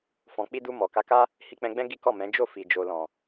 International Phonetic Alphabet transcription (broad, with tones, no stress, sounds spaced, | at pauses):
f ɔ̃˨ k͡p i˧ d u˧ m ɔ˨ k a˨˦ k a˦ | h i˧ k͡p ɛ̃˧ ɡ͡b ɛ̃˦ ɡ i˦ k ɔ˦˨ m ɛ̃˨˦ d͡ʒ o˦˨ f i˨ d͡ʒ o˨ l ɔ̃˨